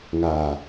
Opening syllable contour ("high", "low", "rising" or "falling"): low